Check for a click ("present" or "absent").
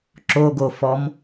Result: present